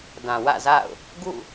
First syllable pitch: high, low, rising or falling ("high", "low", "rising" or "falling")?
low